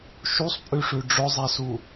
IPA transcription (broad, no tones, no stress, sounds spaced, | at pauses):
ʃ u sˤ pʼ ʉ ʂ ʉ ɖ͡ʐ ʊ zˤ ɛ s u